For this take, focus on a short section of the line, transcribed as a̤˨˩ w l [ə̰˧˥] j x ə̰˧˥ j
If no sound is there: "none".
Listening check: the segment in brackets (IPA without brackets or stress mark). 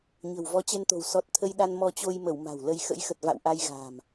ə˧